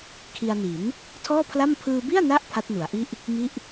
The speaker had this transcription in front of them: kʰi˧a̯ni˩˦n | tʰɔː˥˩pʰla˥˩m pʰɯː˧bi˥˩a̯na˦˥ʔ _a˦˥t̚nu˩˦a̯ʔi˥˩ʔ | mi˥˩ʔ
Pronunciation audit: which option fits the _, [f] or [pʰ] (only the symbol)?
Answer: pʰ